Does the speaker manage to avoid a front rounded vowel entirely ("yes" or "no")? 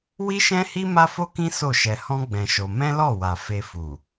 yes